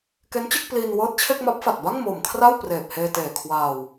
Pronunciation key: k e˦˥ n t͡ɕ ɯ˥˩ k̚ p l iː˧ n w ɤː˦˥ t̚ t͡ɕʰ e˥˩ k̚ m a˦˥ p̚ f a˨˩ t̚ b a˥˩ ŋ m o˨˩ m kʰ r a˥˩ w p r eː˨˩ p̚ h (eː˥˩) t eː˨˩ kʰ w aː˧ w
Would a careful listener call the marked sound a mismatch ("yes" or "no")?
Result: yes